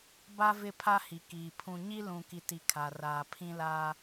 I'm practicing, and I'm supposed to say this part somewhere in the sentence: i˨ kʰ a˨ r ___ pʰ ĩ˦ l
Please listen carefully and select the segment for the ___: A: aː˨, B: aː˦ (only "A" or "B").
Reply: A